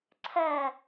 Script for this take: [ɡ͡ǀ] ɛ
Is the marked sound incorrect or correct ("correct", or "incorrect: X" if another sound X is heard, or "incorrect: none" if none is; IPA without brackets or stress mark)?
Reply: incorrect: ǀʰ